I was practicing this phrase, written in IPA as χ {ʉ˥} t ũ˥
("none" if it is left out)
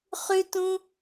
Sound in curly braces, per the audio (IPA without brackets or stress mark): ʉ˥